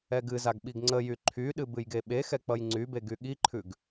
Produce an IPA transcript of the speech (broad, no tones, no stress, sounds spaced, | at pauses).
ɛ ɡ ɨ z a ɡ ɓ i ɡ ŋ͡ǀ ə j y ǃʰ y ɗ ɨ b ɨ j ɡ e ɓ e x ɛ k͡p ʌ j ŋ͡ǀ y b e ɡ y ɠ i ǃʰ ʉ ɡ